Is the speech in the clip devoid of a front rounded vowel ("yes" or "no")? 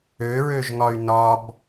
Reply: no